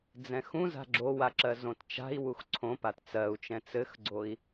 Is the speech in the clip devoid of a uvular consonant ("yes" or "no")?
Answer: yes